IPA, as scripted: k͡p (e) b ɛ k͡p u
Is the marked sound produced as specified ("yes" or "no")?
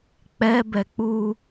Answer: no